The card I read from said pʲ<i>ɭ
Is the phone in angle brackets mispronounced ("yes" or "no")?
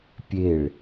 yes